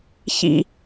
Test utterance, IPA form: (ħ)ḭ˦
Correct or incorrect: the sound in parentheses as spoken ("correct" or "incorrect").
incorrect